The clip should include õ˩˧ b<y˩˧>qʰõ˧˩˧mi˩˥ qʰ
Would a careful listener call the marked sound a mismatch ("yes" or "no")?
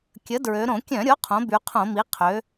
no